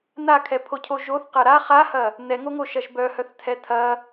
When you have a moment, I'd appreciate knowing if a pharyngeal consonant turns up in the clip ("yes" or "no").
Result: no